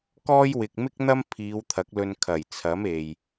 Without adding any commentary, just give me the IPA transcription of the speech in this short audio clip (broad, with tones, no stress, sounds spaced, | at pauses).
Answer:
k ɔː˥ j w ɪ˨ k̚ m ɪ˥ k̚ n̪ ɐ˥ m pʰ iː˨˧ w t̪ʰ ɐ˨˥ k̚ l ɵ˧ n kʰ ɐ˨˩ j t͡sʰ ɐ˨˥ m e˨ j